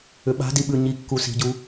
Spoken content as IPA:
ʏ ɓ a̤ d i ɓ ʉ ɲ i kː u s i̤ ɟ u

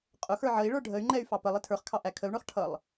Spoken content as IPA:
qʼ ʊ x ə˞ ʕ ə i̯ ɭ ə˞ ɖʱ ə y̯ ŋ͡ǃ ɛ y̯ f ɑ p ə lˠ ɪ tʰ ə˞ χ kʰ ɑ ʔ æ kʰ ə u̯ ɳ ə˞ χ ʈʰ ʌ lˠ

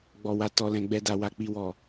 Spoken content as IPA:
ɡ͡b ɔ˨ w a˨ t ɔ˨ l ɛ̃˨ ɡ͡b ɛ˨ d a˨ w a˨ k͡p i˨ w ɔ˨

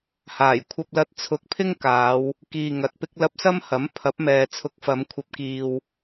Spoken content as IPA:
h aː˨˩ j kʷʰ ɐ˧ p̚ l ɐ˧ t̚ t͡sʰ ʊ˨˥ k̚ pʰ ɪ˥ ŋ k aː˨˧ w | k iː˧ ŋ ɐ˨˥ t̚ p ɪ˥ k̚ l ɐ˥ p̚ s ɐ˥ m h ɐ˨˥ m pʰ ɐ˨˥ p̚ m ɛː˨ t͡sʰ ʊ˨˥ k̚ f ɐ˨˧ m kʷʰ ɐ˧ p̚ k iː˧ w

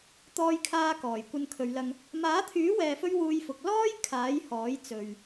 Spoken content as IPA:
t̪ ɔː˧ j kʰ aː˧ k ɔː˨˩ j kʷ ɐ˧ n kʰ ɵ˨˧ ɥ l ɐ˧ ŋ | m aː˨˥ t̪ʰ yː˨˥ w ɛː˨ f ɵ˧ ɥ w uː˧ j f ʊ˨ k̚ l ɔː˥ j kʰ aː˨˥ j h ɔː˨˥ j t͡s ɵ˨ ɥ

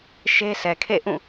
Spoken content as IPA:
ʃ e˦ s ɛ˨ kʰ ḛ˦˨ ʔ ũ˦˨

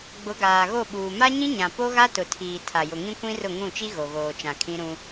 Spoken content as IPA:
ɡ͡b ʊ˨˦ ɡ aː˨ ɣ o˦˨ ɓ uː˨ m a˦ ɲ ĩ˦ ɲ ã˨ p o˦ ɣ a˦ t ʊ˨ tʰ iː˨ tʰ a˨ j ʊ˨ ŋ ĩ˦ kʷ ĩ˦ r ʊ˦˨ ŋ ũ˦˨ t͡ʃ i˦ ɣ o˨ ɣ oː˨ t͡ʃ ã˨ kʰ ĩ˦ ɾ ũ˦

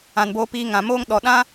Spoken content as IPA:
ã˨ n b oː˧ p iː˧ ŋ ã˨ m oː˦ ŋ ɗ ɔ˧ ɗ ã˦

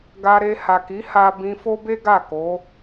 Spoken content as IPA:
ɡ a˧ ɾ e˧ h a˨ k i˨˦ h a˦ b ĩ˧ f o˦ b e˦ ɡ a˦˨ k o˨˦

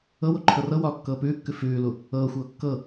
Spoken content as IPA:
ɤ w o ǃʰ ɤ r ɤ w ɒː kː ɤː p ʉː kː ʉ f ʉː l u | ɤː xʷ ɤː kː ɤ

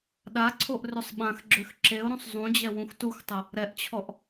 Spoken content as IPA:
ɗ a ǀʰ o ʔ r ø sˤ ɓ ã x ɡ͡ǁ ø x ǁ e ʊ̯ ɾ ũ sˤ zˤ ũ d͡ʑ ɛ w ũ x t u x tˤ ə | ɾ ɛ ʔ t͡ɕʰ ɔ ʔ

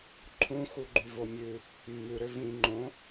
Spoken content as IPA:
ǃʰ ũ x u ɡ͡ǃ y v o mʲ ʉ | mː ʉ ɾ ø v ĩ ŋ͡ǃ õ

